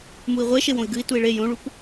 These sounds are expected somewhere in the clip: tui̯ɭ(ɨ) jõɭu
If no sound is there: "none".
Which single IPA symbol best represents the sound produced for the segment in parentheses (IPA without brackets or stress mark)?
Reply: e